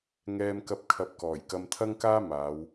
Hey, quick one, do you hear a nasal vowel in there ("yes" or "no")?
no